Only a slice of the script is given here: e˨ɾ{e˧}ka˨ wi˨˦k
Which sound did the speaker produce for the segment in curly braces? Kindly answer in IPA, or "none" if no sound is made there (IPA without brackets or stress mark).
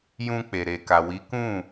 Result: e˨